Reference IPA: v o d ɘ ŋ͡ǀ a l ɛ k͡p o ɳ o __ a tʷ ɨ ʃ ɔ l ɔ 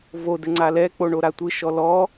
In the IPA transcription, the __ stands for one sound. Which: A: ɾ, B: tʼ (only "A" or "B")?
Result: A